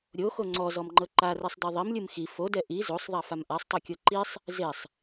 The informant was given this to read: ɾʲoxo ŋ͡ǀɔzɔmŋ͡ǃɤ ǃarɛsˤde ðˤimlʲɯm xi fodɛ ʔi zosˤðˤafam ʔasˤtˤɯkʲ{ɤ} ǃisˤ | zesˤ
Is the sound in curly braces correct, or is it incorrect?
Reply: correct